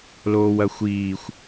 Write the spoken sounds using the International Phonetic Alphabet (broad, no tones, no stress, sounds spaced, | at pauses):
l oː w ɐ xʷ iː xʷ